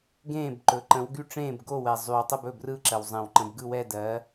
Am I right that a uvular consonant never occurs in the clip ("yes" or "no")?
yes